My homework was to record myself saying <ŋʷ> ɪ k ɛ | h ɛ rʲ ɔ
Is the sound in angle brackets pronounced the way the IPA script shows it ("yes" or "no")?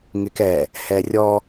no